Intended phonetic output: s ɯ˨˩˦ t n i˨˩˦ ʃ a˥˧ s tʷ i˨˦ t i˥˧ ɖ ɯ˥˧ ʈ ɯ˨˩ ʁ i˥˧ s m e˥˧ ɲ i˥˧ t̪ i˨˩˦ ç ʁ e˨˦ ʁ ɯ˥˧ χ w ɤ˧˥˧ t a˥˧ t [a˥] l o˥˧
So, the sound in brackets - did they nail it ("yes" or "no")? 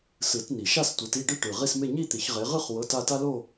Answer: yes